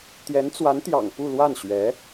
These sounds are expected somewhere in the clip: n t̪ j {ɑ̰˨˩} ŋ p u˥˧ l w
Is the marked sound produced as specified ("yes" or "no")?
yes